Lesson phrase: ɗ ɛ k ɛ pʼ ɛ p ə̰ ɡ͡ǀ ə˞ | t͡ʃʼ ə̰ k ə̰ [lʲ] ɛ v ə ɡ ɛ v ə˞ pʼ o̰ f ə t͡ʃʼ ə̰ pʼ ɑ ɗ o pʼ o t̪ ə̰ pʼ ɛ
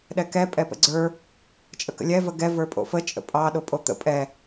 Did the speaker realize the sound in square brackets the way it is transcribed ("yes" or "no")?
yes